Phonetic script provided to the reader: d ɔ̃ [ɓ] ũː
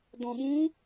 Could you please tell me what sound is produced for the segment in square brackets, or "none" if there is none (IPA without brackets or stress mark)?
ɓ